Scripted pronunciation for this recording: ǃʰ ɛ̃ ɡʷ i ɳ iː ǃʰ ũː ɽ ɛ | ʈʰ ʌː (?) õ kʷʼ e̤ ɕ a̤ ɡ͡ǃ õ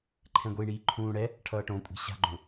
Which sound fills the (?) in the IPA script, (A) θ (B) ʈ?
B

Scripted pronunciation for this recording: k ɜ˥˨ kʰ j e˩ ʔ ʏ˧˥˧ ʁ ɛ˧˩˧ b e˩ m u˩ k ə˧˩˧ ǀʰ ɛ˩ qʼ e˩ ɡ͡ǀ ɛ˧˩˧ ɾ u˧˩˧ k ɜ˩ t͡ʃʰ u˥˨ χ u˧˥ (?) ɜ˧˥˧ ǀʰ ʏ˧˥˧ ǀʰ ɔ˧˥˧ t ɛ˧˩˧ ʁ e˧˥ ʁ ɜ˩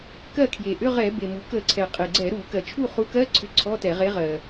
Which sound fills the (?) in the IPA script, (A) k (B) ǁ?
A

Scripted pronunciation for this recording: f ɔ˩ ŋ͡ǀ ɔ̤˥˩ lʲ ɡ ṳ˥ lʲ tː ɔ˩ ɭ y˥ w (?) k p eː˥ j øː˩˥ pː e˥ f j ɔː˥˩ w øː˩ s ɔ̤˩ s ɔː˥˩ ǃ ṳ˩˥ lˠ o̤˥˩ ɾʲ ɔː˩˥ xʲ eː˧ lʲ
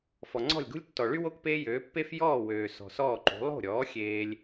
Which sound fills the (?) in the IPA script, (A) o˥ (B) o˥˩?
A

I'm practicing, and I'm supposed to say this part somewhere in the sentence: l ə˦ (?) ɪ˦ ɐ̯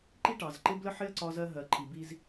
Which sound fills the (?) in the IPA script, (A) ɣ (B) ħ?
B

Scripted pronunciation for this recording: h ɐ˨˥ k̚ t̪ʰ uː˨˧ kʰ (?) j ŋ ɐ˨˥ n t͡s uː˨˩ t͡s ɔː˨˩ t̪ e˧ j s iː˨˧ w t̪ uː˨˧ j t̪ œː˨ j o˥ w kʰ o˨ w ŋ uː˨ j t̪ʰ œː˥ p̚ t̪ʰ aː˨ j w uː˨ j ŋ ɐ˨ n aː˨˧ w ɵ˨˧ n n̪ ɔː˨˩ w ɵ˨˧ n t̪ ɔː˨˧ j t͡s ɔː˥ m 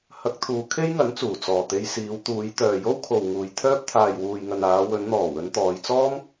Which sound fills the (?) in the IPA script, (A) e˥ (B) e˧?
A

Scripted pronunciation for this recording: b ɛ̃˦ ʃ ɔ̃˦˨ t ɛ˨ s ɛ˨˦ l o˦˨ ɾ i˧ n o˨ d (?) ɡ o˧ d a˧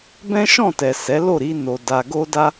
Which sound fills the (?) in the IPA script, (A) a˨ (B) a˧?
A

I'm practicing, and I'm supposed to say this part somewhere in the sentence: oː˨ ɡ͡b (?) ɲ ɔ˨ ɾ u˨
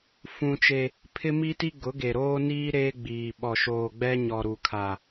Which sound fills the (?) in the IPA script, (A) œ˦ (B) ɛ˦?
B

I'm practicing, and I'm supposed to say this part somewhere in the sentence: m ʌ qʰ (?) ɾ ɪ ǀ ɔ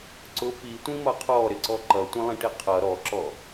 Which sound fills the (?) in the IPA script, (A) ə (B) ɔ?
B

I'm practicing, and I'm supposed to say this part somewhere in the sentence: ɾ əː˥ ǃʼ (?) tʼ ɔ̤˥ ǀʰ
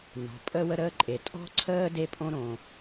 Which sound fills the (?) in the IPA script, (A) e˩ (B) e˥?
A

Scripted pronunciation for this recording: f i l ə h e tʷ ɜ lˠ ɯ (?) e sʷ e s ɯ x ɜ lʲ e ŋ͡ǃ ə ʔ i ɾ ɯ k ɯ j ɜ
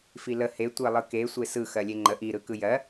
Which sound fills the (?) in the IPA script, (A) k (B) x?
A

